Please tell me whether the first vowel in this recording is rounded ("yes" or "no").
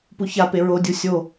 yes